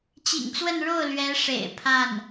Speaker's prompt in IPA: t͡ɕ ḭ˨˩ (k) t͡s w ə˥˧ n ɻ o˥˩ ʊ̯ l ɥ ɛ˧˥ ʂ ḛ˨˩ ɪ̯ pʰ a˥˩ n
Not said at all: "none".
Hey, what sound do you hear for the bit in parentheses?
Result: ŋ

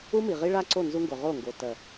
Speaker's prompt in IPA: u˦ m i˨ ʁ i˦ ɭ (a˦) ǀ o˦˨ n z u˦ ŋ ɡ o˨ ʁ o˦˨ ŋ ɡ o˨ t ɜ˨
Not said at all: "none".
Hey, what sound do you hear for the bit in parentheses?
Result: a˦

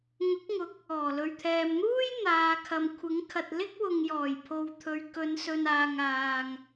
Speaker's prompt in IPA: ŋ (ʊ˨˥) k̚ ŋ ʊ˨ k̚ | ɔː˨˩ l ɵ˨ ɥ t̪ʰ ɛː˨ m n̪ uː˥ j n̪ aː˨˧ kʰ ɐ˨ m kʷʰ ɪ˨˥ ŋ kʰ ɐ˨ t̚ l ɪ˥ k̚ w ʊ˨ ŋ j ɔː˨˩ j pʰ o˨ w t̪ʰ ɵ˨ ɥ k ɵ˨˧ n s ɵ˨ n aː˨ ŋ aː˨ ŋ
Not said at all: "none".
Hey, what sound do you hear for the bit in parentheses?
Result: ʊ˨˥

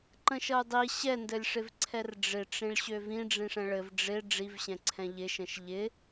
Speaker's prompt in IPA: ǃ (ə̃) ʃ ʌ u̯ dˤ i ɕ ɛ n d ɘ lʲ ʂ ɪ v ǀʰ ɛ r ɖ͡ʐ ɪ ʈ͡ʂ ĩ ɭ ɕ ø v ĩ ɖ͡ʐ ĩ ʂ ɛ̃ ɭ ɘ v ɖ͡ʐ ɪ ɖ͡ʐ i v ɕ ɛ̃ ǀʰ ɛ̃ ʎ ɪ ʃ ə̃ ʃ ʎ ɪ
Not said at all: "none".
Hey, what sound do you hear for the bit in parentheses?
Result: ə̃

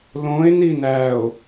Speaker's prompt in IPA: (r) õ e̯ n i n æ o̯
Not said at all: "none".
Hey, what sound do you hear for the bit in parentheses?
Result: l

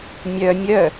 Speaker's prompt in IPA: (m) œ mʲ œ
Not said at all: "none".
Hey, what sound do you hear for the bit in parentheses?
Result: mʲ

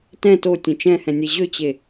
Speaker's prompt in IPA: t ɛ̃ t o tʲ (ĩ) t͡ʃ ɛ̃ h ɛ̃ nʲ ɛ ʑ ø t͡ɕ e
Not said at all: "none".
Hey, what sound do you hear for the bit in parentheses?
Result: ẽ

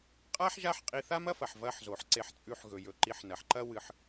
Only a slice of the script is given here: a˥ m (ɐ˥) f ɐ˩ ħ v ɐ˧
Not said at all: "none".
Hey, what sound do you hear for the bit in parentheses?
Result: ɐ˥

